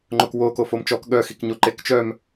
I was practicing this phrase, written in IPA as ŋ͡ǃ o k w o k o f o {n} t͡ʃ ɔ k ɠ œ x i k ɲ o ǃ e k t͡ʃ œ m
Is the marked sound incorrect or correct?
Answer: incorrect